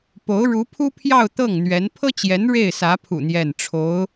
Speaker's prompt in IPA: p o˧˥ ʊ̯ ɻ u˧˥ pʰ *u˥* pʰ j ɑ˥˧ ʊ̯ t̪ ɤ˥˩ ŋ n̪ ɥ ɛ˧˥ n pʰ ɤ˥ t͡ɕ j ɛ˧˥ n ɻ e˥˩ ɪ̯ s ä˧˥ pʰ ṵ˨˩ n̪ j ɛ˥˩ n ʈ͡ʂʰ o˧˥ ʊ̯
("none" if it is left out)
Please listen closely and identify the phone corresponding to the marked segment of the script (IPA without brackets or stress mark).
u˥